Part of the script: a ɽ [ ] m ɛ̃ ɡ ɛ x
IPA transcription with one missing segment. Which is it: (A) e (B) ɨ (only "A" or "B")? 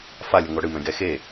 B